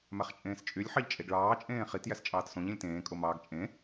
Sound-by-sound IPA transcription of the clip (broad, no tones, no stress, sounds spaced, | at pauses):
m æ χ t͡ʃʼ ẽː s t͡ʃʼ y lʲ ħ ɑ ʎ t͡ʃʼ e ɡ ɭ ɑː t͡ʃʼ ẽː χ i t j æ s t͡ʃʼ ɑː t s õ ʎ ẽ lʲ t ẽː kʼ o m ɑː ɡ t͡ʃʼ ẽ